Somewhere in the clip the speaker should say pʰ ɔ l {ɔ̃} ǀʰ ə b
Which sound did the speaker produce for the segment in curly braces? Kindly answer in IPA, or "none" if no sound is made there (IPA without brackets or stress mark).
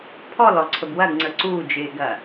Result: ɔ